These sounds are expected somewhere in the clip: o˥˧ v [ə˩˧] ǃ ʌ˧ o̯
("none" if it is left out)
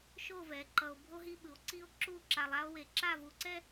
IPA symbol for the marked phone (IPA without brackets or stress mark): ɛ˩˧